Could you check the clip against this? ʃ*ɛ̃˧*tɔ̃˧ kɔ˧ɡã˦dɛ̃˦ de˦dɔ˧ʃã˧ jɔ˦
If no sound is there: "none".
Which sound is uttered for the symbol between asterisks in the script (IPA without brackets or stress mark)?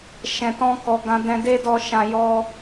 ɛ̃˨